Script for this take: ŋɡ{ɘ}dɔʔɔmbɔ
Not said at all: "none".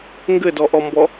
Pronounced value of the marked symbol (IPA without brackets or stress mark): ɘ